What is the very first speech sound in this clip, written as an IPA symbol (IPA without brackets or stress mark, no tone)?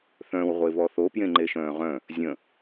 θ